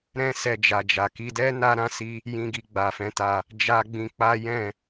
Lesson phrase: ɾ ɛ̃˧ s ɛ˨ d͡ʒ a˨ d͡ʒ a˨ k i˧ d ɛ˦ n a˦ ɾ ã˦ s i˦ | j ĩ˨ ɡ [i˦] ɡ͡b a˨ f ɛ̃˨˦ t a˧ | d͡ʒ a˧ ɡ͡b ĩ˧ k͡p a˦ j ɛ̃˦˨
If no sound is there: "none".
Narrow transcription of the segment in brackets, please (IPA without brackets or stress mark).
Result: i˨